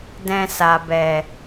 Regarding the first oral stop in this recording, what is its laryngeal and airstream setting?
plain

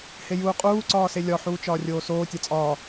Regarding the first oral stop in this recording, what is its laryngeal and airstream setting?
ejective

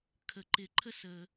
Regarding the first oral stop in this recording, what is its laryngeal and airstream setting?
aspirated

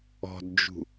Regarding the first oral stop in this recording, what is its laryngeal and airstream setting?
plain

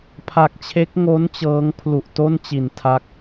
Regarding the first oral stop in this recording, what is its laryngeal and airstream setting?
aspirated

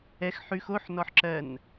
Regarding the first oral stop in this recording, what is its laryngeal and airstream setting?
click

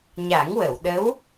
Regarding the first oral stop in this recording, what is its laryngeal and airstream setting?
implosive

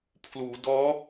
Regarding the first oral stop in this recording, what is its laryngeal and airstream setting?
aspirated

